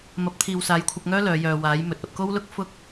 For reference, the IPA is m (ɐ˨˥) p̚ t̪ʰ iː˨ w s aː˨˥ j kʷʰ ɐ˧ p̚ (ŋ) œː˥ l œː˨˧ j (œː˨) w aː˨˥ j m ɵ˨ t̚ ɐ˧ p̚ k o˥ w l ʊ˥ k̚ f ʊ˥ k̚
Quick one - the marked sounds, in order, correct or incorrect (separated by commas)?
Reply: correct, correct, correct